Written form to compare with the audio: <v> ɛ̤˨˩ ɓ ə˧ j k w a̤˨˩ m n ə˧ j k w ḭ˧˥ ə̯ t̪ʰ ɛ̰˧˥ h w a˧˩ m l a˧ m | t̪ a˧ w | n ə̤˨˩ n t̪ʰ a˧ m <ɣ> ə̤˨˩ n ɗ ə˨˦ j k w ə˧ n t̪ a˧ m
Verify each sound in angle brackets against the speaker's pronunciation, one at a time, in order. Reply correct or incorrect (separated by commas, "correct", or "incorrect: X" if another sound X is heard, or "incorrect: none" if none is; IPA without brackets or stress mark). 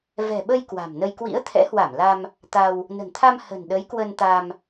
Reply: correct, incorrect: h